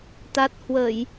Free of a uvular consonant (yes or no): yes